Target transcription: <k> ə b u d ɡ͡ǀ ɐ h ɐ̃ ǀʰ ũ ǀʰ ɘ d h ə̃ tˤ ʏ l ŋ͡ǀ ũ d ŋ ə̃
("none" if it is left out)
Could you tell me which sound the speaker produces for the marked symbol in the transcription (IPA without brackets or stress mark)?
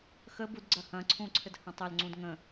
x